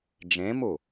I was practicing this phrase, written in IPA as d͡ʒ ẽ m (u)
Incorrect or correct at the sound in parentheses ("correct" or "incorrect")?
correct